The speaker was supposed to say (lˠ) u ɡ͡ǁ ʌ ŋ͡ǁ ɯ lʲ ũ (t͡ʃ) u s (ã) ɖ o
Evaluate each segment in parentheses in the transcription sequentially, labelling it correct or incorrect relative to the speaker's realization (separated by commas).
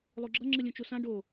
correct, correct, correct